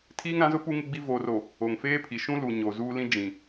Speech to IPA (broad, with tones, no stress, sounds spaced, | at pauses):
tʰ iː˦ ŋ ɾ ã˨˦ z ʊ˦ p u˦ ŋ ɪ˦ ɡ͡b i˦ v oː˨ r o˨ | o˨ ŋ f eː˦ pʰ i˨ ʃ ũ˦ l u˨ ɲ o˨ z uː˦ l ĩ˦ d͡ʒ ĩ˨